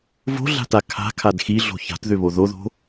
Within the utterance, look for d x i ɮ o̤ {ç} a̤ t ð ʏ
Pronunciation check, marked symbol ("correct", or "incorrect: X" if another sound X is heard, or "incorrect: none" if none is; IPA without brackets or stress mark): correct